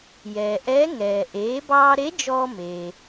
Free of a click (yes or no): yes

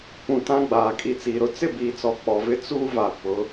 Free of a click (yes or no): yes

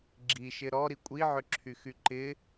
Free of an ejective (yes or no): no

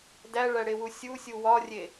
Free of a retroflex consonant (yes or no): no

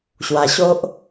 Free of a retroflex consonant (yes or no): yes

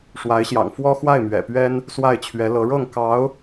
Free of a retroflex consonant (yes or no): no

